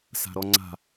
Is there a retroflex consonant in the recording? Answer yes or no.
no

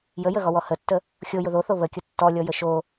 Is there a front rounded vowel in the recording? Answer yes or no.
no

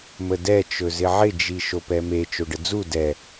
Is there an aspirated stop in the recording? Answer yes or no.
no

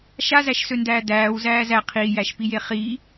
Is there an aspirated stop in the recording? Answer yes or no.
yes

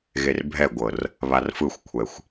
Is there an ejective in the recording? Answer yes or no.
no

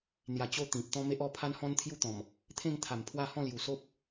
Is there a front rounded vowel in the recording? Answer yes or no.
no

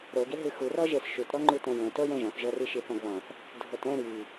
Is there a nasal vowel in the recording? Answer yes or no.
yes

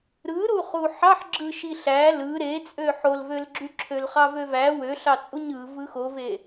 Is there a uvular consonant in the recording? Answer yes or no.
yes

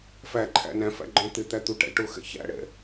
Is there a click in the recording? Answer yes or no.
yes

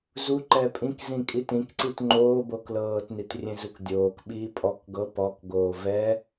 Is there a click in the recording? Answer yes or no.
yes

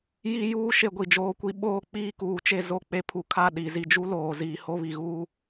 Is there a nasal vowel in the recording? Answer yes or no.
no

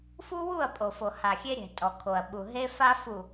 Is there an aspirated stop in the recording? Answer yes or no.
yes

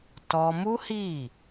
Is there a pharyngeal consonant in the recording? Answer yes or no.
no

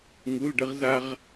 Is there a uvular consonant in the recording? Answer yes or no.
yes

